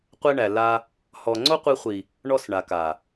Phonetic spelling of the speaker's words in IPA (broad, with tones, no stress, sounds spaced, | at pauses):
qʷ ɛ˧ ɳ æ˨ l a˧ | h ɔ˨ ŋ͡ǀ o˦ qʷ i˧ χʷ i˨ | ɳ ɔ˧ s ɳ a˨ k a˨